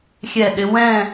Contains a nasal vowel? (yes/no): yes